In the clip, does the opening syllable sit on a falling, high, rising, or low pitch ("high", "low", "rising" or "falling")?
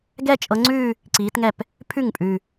falling